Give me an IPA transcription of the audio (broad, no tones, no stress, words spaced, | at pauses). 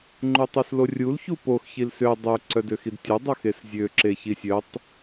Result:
ŋ͡ǃutˤuslorʲul çupox çilsø dˤø ǀœdøxidtʲo dˤœxeszʲø ǁeçisʲœtˤ